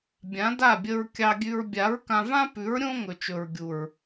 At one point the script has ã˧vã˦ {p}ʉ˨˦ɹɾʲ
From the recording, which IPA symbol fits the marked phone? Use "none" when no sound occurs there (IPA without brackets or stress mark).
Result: p